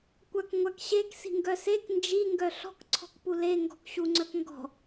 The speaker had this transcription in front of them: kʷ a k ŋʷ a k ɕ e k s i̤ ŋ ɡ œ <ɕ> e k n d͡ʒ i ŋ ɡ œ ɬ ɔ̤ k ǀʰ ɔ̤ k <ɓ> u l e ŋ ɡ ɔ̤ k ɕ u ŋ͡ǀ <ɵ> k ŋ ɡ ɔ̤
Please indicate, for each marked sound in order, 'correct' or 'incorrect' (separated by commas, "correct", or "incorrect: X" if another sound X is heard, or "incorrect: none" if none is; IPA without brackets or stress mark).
incorrect: s, incorrect: p, incorrect: œ